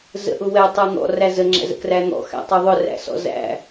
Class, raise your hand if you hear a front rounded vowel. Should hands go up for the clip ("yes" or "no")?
no